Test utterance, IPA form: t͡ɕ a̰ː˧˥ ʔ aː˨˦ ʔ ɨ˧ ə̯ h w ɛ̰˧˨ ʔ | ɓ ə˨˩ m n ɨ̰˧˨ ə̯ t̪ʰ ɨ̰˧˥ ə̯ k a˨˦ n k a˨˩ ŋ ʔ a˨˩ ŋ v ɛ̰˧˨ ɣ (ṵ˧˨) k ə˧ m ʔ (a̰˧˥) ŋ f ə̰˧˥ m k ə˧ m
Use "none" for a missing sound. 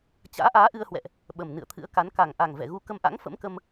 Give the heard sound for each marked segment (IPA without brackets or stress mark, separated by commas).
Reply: u˨˦, a̰˧˥